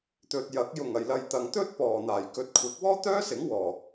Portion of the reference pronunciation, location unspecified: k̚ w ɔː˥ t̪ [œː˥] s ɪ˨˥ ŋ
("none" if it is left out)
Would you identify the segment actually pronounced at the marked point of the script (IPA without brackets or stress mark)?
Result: œː˥